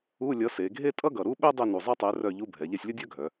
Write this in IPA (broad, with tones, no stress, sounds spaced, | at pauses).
u˧˥˧ lʲ ʌ˨˥ s e˩˧ ɡʱ e˥ tʼ ʌ˥ ɡ ʌ˨˩ ɾ u˥ ɓ ɛ˥ dˤ e˦˨ n u˨˩ zˤ ɛ˥ tˤ ɛ˨˥ r œ˦˨ ʎ u˧˥˧ bʱ ɛ˩˧ ʎ ɛ˦˨ sʲ lʲ ʌ˥ dʲ œ˥ ɡʱ œ˩˧